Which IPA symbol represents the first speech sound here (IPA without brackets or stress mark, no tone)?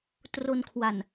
t